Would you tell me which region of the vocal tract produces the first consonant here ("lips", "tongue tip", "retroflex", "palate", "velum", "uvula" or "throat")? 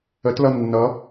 tongue tip